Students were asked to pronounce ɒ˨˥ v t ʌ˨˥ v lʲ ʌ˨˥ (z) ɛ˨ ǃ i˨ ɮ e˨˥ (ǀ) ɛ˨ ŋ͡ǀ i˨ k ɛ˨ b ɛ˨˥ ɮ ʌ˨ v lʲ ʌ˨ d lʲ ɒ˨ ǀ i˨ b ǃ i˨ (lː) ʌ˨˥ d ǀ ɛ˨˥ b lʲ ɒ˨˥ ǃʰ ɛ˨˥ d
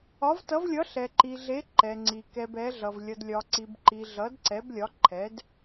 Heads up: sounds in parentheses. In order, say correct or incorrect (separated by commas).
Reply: incorrect, incorrect, incorrect